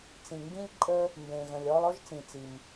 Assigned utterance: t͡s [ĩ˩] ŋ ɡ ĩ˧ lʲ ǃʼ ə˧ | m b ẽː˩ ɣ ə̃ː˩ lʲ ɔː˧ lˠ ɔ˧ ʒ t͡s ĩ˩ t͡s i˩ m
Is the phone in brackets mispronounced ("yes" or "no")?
no